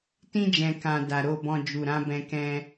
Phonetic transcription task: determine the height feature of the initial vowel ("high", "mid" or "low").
high